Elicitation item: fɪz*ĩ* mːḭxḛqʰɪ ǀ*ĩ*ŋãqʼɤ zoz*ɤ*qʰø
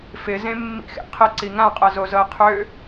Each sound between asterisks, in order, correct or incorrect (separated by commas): incorrect, incorrect, correct